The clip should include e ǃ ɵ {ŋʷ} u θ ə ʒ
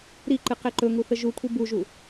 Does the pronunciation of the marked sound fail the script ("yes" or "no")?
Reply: yes